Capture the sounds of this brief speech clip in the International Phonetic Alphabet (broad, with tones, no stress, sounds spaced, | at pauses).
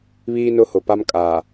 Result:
β iː˦ n ʊ˦ h ʊ˨ p a˦ m kʼ a˨